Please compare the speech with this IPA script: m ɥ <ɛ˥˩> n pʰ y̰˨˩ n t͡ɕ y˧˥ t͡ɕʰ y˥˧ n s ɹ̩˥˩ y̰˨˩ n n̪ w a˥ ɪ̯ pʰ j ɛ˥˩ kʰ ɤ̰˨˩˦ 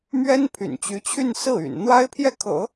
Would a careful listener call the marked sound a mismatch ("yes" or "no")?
yes